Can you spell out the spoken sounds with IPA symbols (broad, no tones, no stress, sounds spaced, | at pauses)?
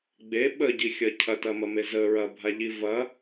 ɡ͡b e ɓ ə ɟ i xʲ ɐ cʰ ɐ t ɐ m ɐ m e z ə ɹ ɐ bʱ a ʎ i v ɐ